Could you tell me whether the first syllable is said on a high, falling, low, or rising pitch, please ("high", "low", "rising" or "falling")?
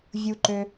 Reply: high